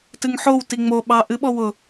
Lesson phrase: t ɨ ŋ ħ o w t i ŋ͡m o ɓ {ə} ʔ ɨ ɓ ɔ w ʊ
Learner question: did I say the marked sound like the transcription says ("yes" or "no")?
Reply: no